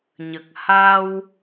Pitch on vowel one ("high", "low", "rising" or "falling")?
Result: low